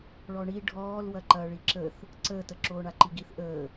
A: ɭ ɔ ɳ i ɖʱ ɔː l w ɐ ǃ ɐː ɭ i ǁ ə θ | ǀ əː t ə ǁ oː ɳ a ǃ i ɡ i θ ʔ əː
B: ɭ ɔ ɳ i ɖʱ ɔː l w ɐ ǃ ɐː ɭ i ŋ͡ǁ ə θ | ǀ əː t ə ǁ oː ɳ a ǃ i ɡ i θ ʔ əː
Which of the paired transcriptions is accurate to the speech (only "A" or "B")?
A